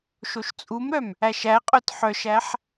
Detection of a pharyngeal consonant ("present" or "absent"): present